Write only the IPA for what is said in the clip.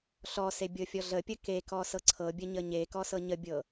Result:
ɬɔse bʲɤfʲɔɮəpʲə kekɔ sɤǀʰɤbʲə ɲəɲekɔ sɤɲəbʲɤ

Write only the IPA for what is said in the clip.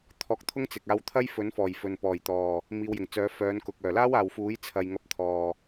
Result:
t̪ʰɔː˧k̚t̪ʰʊ˥ŋ t͡sɪ˨k̚aː˧w t̪ʰɐ˥jfɵ˨˥nfɔː˨˩j fɵ˨n pɔː˨˩jt̪ɔː˨˩ | miː˨˧wjɪ˨˩ŋt͡sœː˨˥ fœː˨˧nkʊ˨k̚ œː˨˩laː˥waː˨wfuː˨˥j t͡sʰɐ˨j ŋɐ˧p̚t̪ʰɔː˨

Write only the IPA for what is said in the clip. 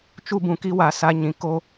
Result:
t͡ʃu˦bũ˨ki˦wa˨ sa˦ɲĩ˨ ko˦

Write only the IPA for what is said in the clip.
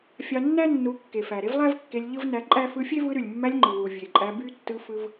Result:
fʲɑ˧nːæ˦nːu˨˦ kːe˨fæ˨ɾe˦v lˠæ˦vkːe˧lʲ ʎɯ˦vnæ˧ǃʼæ˦ fɯ˧fʲe˦vɯ˧ ɾy˨lʲmːæ˧lʲ ŋ͡ǃɯ˨wu˨ vʲe˨ǃʼæ˧ by˦tːɯ˧fɯ˧v

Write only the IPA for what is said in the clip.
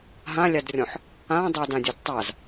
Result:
ɦãlʲadrʲɔ̃ħ | ã dˤɛdãdʲɘdtˤaz

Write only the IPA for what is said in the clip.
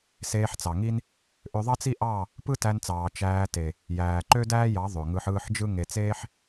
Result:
seː˧ħt͡sɑ˨ŋi˦n | ʔø˧ðˤɑ˦t͡si˦ʔɑ˦˨ | pɯ˦tæ˧nt͡sɑː˨ t͡ʃæː˧te˨ | jæː˨ǃø˦dæː˦jɑ˨˦ ðˤø˨ŋɯ˧ħ ɯː˦˨ħd͡ʒɯ˦ ŋe˨t͡seː˦ħ

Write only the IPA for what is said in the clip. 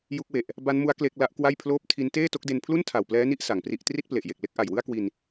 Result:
ju˦˥k̚we˨˩ʔ | ba˦˥nmu˦˥a̯ kle˥˩k̚ la˦˥ʔkwa˥˩jpʰloː˥˩p̚ tʰi˦˥n teː˥˩to˦˥k̚de˧n pʰlu˥˩ntʰa˨˩wplɛː˦˥ni˦˥ʔ sa˩˦ŋpri˥˩ʔ tri˥˩t̚ple˨˩ʔje˨˩k̚ le˥˩k̚ʔa˨˩jwɯ˥˩a̯kwi˧n

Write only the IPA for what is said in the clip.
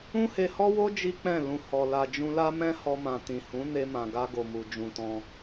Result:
ũ˦he˧hɔ˦wo˦ d͡ʒi˦k͡pɛ̃˦˨ lũ˧ hɔ˨ la˨d͡ʒũ˧la˦mɛ̃˦ hɔ˧mã˨ tĩ˨hũ˨˦ ne˧mã˨ɡa˧ ɡo˨mu˨ d͡ʒũ˨tɔ̃˧

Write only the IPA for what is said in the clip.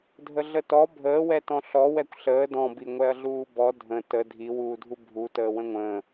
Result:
dʱəɮətɔ bʱəːwɛtɔ̃ ɬɔwɛkʷ ɬəː dɔ̃bi ŋʷɛɐ̯ɮuːbɔ dʱə̃ tə dʱiwuːdʱu bʱutəː wə̃ŋʷə̃ː

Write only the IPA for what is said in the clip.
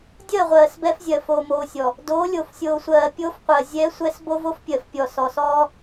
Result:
dʲɜ˦˨ʁʷɜː˨s bɛ˦fzʲɜ˨ fo˨mo˨sʲɔ˨ | doː˨˦lʲo˨f sʲoː˨sʷɜː˨ pʲoː˦fqʷɜ˨ zʲɛː˦sʷɛ˦s bo˦vo˦fpʲɜ˨f pʲɔ˨sɔ˨sɔː˦

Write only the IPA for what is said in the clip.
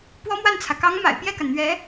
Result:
pwɔ˥mwa˥˩nt͡sʰä˩ kɑ˧˥ŋ ma̰˨˩ɪ̯pjɛ˥˩ka˩nn̪ɥɛ˧˥

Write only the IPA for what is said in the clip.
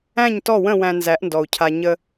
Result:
æ̃˦˨ɲtɔ˦˨wə̃˦˨ wæ̃˧nzæ˨˦ʔndɔ˨u̯cʰa˧ ɲə˧

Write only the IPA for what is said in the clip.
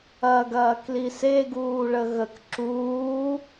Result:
ɐɡɐːkli seɡuːɭə ɣək ǁuː

